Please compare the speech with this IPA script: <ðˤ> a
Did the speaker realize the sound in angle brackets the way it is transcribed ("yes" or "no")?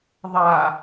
yes